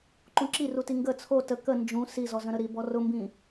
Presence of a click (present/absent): present